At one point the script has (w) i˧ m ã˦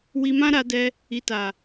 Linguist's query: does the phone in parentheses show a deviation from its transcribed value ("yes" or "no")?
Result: no